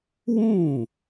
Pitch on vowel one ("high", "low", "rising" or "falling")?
falling